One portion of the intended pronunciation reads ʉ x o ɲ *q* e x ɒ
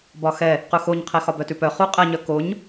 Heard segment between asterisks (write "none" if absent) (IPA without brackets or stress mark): qʰ